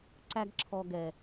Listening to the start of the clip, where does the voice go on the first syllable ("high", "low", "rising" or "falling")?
high